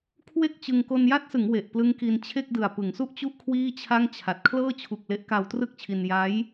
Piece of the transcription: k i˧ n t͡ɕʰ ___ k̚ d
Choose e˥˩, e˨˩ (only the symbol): e˥˩